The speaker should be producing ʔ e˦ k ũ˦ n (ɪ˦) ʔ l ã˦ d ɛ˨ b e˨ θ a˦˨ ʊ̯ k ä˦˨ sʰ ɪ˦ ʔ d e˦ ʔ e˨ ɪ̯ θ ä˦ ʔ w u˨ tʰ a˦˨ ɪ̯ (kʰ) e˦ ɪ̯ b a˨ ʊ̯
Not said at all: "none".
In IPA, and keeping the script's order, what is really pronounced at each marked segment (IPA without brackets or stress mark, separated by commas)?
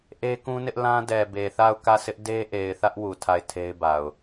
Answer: ɪ˦, tʰ